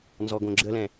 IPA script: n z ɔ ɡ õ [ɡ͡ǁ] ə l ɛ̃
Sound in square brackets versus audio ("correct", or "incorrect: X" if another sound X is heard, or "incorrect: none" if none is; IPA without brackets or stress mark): correct